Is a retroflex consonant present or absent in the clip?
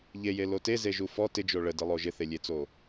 present